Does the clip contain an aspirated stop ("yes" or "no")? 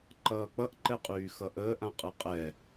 no